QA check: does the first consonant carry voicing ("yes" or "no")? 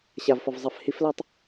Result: no